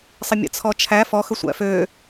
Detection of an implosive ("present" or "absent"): absent